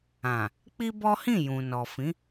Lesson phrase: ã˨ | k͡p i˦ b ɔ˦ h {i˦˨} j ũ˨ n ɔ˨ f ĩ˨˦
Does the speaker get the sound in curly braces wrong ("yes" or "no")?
yes